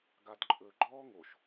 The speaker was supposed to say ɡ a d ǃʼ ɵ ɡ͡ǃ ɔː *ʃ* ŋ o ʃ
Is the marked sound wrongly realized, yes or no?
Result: yes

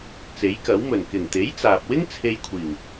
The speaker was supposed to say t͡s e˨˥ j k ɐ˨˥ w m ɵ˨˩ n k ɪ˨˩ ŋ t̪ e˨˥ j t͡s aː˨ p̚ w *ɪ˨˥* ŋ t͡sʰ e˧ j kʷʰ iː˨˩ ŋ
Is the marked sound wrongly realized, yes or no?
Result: yes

